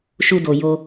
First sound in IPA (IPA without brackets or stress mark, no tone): ʃ